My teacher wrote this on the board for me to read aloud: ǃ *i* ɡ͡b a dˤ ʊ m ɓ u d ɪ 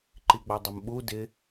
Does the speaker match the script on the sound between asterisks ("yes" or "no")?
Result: yes